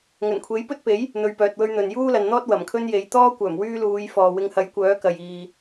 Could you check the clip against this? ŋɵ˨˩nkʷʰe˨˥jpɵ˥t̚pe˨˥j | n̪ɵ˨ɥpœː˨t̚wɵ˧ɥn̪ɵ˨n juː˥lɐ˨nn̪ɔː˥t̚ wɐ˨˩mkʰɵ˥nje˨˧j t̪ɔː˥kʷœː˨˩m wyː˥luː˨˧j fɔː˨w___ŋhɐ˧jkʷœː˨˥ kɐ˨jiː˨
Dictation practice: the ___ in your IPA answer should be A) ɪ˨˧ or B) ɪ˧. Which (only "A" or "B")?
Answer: B